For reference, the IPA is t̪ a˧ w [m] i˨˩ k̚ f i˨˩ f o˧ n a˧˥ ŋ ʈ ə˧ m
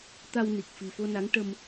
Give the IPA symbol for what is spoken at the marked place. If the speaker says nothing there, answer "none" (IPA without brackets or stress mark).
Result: n